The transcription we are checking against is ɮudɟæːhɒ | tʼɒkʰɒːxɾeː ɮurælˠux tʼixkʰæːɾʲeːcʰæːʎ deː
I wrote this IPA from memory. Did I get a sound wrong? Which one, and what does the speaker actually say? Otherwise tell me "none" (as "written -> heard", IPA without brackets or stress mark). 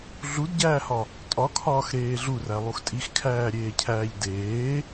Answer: none